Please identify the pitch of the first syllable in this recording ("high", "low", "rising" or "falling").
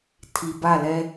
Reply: low